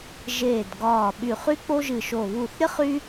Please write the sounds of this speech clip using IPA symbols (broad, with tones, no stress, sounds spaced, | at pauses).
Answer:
ʒ eː˧˩ d ɡ ɒː˧˩ ɓ y˧˩ χ y˥ k͡p o˥ ʒ ɨ˧˩ ʃ o˧˩ β u˧˩ θ ɾʲ ə˥ χ y˥